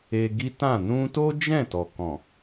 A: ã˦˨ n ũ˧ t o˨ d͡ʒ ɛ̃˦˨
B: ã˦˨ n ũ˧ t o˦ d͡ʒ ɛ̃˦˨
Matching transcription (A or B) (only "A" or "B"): B